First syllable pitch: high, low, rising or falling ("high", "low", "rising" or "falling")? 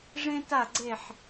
high